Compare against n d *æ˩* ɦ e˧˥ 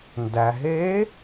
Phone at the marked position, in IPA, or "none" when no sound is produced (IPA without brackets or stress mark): æ˩